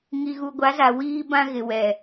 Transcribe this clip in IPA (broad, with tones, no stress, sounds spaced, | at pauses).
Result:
ŋ i˨ ɣ u˨ ɡʷ a˨˦ z a˨ w iː˦ b ã˦ ɣ ɪ˨ w ɛ˨